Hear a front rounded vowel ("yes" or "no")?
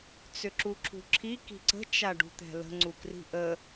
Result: yes